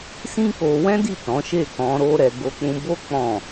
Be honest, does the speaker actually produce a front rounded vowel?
no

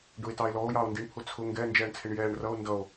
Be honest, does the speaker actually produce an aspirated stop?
yes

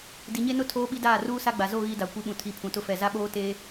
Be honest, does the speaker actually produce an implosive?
yes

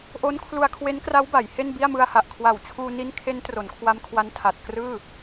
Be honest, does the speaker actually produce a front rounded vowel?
no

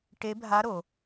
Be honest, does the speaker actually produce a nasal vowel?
no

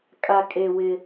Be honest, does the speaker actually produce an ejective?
yes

